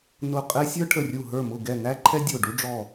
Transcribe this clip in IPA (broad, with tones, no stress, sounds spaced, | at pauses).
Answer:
n ʊ˧˩ qʼ ɛ˦ sʲ ə˞˦ ʈʰ ə˧˩ rʲ u˧˩ ɦ ə˞˧˩ m ʊ˧˩ ɡ ɛ˧˩ n æ˦ ǃʰ ɛ˦ dʲ ʊ˧˩ ɖ u˦ ɖ͡ʐ ɔ˧˩